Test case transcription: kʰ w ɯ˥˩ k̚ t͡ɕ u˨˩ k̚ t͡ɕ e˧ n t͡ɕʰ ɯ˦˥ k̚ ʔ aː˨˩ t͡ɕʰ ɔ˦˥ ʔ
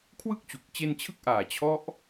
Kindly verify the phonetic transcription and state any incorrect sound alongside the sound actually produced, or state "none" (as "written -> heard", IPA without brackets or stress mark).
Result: none